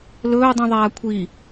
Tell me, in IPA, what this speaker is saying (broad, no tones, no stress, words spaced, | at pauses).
lɵː dˤũðˤaːkʷʰi